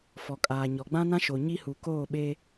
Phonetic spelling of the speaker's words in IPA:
f ɔ˨ kʼ aː˨ ɲ ɔ˨ ɡ͡b ã˦ n ã˦ ʃ o˨ ɲ i˦ h u˨ k oː˦˨ ɓ eː˦

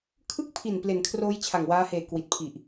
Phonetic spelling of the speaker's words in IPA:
kʰ ɯ˥˩ k̚ pʰ i˨˩ n p l e˩˦ n kʰ r oː˦˥ j t͡ɕʰ a˨˩ ŋ w aː˦˥ h eː˨˩ k w i˨˩ t̚ pʰ i˨˩ ʔ

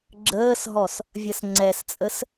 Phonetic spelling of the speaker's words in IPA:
ɡ͡ǁ əː s ɦ ɔ s | vʲ ɜ s ŋ͡ǀ ɛ s t͡sʼ ə s

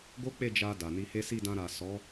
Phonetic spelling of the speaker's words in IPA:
ɡ o˦ k͡p e˦˨ d͡ʒ a˧ d a˨ n i˧ h e˦ s i˦˨ d ã˧ ɾ a˨ s ɔ˨˦

